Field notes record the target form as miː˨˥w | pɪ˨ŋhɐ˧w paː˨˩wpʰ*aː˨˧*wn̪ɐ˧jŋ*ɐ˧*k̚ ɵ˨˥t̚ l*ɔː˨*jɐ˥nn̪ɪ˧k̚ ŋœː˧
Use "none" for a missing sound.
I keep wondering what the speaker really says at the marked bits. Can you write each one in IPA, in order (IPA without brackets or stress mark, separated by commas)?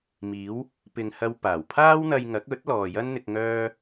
aː˥, ɐ˨˥, ɔː˨